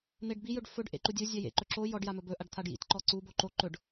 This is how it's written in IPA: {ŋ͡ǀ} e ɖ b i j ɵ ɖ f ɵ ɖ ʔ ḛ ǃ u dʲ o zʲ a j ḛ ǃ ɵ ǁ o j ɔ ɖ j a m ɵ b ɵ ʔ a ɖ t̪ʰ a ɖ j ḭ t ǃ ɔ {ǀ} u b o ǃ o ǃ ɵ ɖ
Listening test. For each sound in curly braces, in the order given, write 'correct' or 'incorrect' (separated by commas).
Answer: incorrect, correct